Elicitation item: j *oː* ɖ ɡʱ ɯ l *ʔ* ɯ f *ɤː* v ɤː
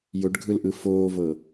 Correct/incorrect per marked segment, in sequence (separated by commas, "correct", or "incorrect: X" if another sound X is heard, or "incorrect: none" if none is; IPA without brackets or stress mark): incorrect: o, correct, incorrect: oː